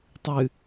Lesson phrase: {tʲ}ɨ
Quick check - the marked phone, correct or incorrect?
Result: incorrect